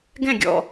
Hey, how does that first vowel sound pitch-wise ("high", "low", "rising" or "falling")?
falling